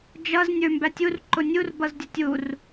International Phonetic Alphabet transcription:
d͡ʒʌz nʲə˞mbætʲur ǃʊnʲur bʌzdʲʊtʲur

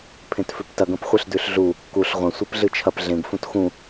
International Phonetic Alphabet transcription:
pʰẽtfʉptɐɡ ɐ̃pχʷɨɬdʉɬɮu | kuɬ ʁʷɐ̃ sʷepɮɨt͡ʃʰɐp ɮẽɡ fũtxũ

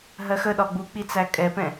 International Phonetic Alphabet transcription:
ɦɜxəɗɒ ɡ͡buk͡pi t͡sækʼɛpɛ̃

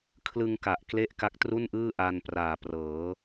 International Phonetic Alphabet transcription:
kʰlɯ˧ŋ ka˨˩ʔ kle˥˩ʔ ka˦˥k̚tru˥˩nʔɯː˥˩ ʔa˧npraː˨˩ prɤː˩˦

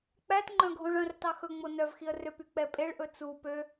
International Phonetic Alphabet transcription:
k͡pætŋ͡ǃœ̃ ɡʱõɭœ̃rtɑ xɵŋ͡mo nœvxiə̯ røpy k͡pɛpʼeɭʔɵ t͡su pø

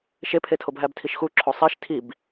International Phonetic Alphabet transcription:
ʃepʰetʰob ɦæbtʰiʃxu ǁʰosˤiʃ tʰib

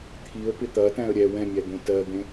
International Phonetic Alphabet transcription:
t̪ʰiə̯pɪ t̪ɐtæ̃ə̯ ɾʲɛ wɛ̃mʲæ d̪õtɜd̪ẽ

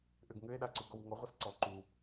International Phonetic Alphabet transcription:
ʔʏɡŋʏe̯ɗa ǀuɡɔwŋɔʁʷas ǀɔ ǃu

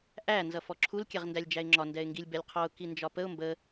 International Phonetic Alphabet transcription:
ʔæ nzʌfɔǁʰul kʲɛʁndælʲd͡ʒæɪ̯ŋ͡ǁɒ ndɛɪ̯ŋɡilʲbɛlʲqʰɔʊ̯ kind͡ʒɒpəʊ̯ mbə

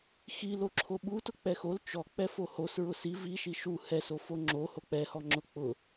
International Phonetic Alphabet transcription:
xil oǁʰoɓutʊ k͡pɛxol t͡ʃɔk͡pɛ fohos ɹʊsi viʃi ʃu hɛso foŋ͡ǁo hok͡pɛhɔ ŋ͡ǁʊk͡pʊ

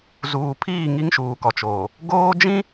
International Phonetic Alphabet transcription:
zuː˨pʰiː˦˨ ŋi˦ŋʃuː˨kɔ˨t͡ʃoː˨ | ɡoː˦d͡ʒĩ˦

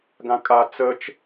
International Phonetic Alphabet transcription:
ɡãkʼa t͡sət͡ʃ

